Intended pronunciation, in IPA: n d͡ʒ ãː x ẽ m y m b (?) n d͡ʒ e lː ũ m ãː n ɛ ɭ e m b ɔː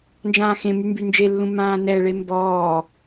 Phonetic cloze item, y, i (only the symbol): y